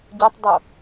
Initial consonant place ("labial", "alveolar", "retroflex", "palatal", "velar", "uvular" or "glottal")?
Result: palatal